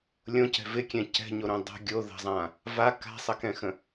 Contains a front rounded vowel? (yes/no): no